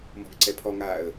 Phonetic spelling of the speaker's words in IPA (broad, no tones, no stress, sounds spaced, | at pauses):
m ɔ̤ ɡ ǀ ɛ pʰ ɔ ŋ aː ə̯